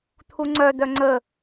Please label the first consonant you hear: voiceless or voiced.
voiceless